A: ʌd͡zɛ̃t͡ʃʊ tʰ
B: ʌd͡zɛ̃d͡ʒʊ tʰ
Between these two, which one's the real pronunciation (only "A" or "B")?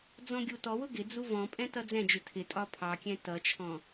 B